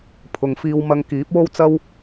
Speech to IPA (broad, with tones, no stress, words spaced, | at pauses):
pʰʊ˨ŋfiː˧w mɐ˧ŋkiː˨˥p̚wo˥wt͡sɐ˥w